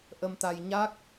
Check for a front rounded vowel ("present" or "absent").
absent